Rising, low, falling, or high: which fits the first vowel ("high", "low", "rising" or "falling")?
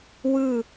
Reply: falling